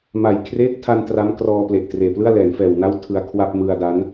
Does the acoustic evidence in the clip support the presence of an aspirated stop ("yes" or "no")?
yes